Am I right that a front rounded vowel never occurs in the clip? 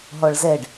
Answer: yes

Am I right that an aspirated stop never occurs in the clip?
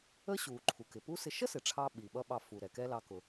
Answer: no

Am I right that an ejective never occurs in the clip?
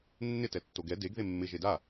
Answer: yes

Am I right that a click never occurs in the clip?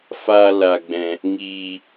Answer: yes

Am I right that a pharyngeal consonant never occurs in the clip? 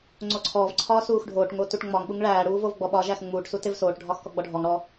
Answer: yes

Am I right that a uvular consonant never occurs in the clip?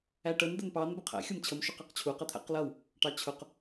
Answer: no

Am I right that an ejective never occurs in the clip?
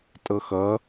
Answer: no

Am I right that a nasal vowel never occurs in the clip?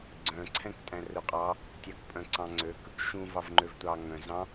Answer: no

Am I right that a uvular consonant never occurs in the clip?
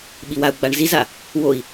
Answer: yes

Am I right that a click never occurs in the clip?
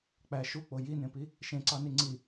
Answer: no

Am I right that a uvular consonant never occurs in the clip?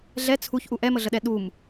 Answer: yes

